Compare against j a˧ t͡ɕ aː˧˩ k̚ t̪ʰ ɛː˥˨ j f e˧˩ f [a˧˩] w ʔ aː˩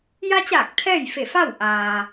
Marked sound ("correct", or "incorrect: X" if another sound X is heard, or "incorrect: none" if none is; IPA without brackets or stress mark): incorrect: a˥˨